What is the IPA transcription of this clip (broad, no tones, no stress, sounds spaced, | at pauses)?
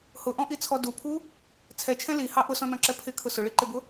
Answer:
h ʊ ʔ ɔ̃ ʔ i t͡sʰ ɔ d u pʰ u | t͡sʰ ɛ t͡ʃʰ ɛ̃ l i h ɑ ʔ ʊ s ɔ̃ n ɔ̃ ǁ ɛ pʰ ɪ kʰ ʊ s ʊ ɭ i ǃ ɪ b ʊ